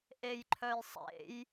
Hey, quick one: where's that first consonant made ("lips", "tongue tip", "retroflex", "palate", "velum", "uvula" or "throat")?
throat